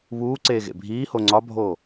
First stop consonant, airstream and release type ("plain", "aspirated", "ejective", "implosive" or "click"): click